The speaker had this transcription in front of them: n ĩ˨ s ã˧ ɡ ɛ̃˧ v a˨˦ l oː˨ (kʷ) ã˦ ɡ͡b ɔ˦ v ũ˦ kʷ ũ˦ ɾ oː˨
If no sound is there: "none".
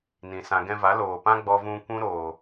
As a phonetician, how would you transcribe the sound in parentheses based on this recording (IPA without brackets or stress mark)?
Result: p